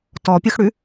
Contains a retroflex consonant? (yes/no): yes